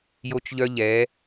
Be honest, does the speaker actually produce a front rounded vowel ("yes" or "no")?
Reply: yes